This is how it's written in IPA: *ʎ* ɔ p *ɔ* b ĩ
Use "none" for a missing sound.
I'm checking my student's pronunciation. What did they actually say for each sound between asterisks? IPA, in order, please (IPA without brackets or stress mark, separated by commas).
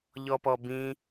ʎ, ɔ